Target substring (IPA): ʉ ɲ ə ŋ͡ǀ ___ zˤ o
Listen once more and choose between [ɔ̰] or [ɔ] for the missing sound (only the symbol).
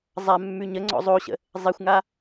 ɔ̰